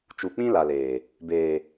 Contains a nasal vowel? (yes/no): yes